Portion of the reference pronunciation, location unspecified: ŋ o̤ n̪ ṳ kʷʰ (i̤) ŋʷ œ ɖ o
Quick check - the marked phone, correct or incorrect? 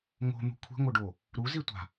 correct